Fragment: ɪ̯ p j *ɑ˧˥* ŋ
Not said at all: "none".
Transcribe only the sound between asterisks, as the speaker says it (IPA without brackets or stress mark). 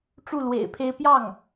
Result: ɑ˥˩